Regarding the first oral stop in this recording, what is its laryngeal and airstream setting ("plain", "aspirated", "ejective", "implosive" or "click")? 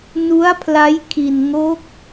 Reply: aspirated